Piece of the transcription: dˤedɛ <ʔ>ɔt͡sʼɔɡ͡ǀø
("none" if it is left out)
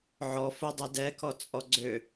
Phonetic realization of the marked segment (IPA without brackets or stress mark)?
k